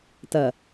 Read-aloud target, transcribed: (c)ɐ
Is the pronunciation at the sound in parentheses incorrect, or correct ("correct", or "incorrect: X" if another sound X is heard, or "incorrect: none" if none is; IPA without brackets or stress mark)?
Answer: incorrect: t